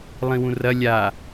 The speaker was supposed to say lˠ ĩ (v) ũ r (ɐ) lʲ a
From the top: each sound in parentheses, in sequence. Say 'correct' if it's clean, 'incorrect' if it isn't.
incorrect: w, correct

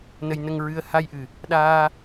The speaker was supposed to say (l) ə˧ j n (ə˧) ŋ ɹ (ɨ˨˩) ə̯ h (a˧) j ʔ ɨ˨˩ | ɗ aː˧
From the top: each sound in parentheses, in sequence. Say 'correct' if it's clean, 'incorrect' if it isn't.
incorrect: n, correct, incorrect: ɨ˧, correct

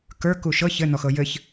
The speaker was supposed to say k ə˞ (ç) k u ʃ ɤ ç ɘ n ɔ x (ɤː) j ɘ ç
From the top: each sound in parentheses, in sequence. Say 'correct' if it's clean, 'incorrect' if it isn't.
incorrect: none, incorrect: ɤ

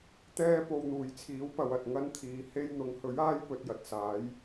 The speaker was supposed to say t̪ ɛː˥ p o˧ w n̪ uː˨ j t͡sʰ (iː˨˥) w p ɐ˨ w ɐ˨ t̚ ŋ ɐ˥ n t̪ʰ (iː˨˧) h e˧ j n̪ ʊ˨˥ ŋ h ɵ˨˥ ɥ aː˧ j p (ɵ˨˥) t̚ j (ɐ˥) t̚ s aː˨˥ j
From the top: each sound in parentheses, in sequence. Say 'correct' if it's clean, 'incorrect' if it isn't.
correct, incorrect: iː˨, incorrect: ɵ˨, incorrect: ɐ˨

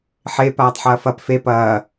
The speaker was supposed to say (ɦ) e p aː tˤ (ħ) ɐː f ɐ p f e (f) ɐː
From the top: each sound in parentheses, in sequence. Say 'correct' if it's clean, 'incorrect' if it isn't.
incorrect: ħ, correct, incorrect: p

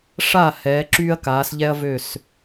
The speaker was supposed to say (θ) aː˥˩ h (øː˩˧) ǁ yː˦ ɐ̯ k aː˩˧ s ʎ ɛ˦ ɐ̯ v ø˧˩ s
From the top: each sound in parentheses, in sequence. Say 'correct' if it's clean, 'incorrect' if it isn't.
incorrect: ʂ, incorrect: ɛː˩˧

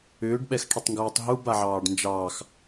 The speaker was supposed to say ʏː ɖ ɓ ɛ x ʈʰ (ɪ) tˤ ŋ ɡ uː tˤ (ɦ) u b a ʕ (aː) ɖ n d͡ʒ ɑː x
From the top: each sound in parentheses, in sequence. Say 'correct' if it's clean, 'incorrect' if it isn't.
incorrect: ə, correct, incorrect: ɑː

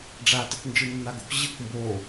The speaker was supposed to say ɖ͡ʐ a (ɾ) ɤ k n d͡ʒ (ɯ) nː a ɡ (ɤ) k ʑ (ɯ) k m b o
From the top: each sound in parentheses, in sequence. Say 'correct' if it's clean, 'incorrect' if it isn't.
incorrect: t, correct, incorrect: o, correct

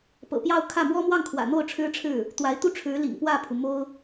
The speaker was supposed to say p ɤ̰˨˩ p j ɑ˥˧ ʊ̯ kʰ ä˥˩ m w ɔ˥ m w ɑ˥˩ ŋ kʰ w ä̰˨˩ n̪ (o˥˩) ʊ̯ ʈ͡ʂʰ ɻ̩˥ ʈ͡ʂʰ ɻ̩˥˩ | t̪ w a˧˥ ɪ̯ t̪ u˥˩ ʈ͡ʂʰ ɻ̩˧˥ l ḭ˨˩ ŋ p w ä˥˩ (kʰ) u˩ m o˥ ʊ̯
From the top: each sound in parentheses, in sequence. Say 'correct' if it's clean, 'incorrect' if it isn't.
correct, incorrect: pʰ

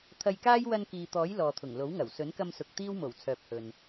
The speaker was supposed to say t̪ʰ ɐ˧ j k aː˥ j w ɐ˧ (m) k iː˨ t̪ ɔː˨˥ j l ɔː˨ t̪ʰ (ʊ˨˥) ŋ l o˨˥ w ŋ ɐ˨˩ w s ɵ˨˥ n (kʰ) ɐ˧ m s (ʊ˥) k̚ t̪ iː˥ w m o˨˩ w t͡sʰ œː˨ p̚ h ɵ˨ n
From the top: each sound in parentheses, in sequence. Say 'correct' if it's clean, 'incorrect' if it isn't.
incorrect: n, incorrect: ʊ˨˩, incorrect: k, incorrect: ʊ˨

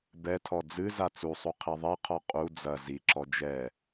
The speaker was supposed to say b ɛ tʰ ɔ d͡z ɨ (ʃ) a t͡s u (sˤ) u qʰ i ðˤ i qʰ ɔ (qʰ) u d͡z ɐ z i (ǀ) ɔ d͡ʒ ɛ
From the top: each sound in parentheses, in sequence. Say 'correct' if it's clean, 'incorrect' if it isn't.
incorrect: z, correct, incorrect: qʼ, incorrect: ǁ

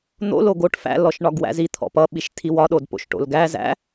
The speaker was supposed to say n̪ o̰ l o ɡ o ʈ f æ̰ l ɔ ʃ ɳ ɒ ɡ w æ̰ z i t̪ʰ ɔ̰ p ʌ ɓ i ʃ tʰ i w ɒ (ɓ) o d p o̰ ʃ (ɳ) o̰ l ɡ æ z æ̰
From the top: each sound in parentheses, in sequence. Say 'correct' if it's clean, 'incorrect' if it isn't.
incorrect: ɗ, incorrect: ʈ

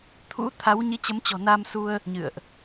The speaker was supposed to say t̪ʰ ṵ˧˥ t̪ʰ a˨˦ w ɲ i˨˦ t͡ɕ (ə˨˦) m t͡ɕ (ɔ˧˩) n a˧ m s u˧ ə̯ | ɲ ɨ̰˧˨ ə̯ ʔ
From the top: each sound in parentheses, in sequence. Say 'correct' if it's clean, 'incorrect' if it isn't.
correct, incorrect: ɔ̤˨˩

